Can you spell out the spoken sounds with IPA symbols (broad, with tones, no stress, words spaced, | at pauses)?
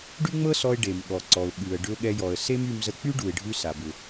ɖy˥ŋ͡mɤ˥sɔ˧ɪ̯ ɖe˩mɠɔ˩ǀɔ˩ʊ̯ ɠʉ˩ə̯ ɖʏ˧ʊ̯ɠɛ˧jɔ˩ə̯ se˥my˧mzə˧ k͡py˥ɖu˩ɪ̯ɖʱʉ˧ sa˩bʏ˩